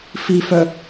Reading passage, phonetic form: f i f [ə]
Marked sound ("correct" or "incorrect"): incorrect